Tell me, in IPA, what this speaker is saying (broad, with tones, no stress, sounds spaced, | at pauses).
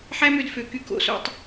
ħ æ˥ m ø˧ d f ø˩˧ k y˧ k o̰˧˩ s o̰˥˧ tˤ